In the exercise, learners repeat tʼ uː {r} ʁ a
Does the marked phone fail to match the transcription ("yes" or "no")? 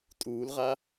yes